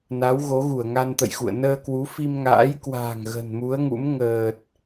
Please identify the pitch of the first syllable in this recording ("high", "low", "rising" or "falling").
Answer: rising